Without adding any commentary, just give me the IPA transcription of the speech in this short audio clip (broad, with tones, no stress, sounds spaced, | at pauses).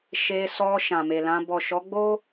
ʃ e˧ s ɔ˧ ʃ ã˨ m e˨ l ã˧ b ɔ˨ ʃ ɔ˨˦ ɡ͡b o˦